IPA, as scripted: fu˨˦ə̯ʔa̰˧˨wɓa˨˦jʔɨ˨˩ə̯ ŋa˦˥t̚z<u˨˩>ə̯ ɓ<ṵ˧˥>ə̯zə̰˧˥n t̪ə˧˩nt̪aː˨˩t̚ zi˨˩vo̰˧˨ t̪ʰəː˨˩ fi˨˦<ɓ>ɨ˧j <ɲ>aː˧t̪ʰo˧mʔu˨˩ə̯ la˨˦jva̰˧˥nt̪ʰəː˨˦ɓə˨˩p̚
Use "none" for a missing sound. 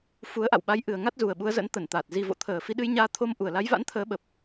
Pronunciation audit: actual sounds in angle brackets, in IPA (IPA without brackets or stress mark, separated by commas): u˨˩, u˨˦, ɗ, ɲ